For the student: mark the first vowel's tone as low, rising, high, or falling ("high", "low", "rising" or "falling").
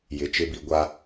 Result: rising